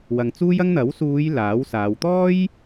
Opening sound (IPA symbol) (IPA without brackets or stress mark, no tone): w